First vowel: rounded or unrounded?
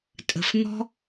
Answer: unrounded